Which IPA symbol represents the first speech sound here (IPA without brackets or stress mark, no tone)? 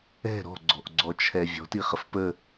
ɛ̤